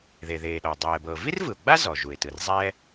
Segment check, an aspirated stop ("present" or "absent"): absent